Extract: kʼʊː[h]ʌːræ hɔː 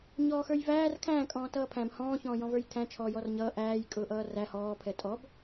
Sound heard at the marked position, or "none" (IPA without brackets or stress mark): ʔ